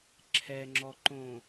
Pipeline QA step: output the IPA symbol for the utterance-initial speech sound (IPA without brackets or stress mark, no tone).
ǁʰ